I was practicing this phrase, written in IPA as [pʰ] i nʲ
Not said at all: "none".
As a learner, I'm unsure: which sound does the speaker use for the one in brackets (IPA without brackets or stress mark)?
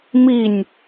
m